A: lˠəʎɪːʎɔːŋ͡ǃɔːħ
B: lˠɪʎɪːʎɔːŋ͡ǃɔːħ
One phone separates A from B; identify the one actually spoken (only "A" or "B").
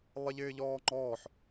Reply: B